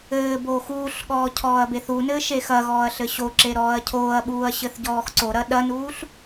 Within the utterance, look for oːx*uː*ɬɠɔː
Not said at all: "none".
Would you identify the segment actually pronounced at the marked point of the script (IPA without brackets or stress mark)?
uː